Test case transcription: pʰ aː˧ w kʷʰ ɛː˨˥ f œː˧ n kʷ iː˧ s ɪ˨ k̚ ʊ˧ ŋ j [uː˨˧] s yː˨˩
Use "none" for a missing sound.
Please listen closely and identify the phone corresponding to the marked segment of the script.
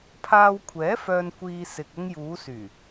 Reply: uː˨˧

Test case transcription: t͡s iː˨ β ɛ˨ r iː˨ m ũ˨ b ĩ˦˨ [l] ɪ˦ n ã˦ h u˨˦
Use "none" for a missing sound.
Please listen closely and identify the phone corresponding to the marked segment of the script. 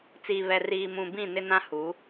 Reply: n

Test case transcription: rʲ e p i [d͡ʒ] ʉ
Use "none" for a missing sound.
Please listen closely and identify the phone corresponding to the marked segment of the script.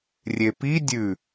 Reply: dʲ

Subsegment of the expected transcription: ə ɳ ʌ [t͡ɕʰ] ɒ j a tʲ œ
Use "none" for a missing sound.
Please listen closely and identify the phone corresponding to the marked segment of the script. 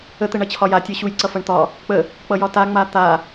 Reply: t͡ɕʰ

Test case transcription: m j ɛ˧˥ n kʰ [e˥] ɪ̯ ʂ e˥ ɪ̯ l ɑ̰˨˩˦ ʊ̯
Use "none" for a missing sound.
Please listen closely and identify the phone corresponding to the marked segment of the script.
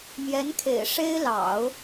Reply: ḛ˨˩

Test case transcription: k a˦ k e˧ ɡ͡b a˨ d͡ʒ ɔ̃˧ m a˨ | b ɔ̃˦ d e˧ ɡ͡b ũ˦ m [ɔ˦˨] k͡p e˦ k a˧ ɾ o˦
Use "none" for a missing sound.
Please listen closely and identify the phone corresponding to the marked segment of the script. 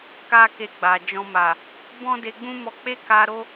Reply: ɔ˧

